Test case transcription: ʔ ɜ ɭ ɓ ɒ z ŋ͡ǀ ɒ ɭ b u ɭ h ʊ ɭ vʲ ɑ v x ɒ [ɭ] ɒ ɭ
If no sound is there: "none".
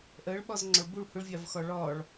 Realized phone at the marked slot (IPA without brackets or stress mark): ɭ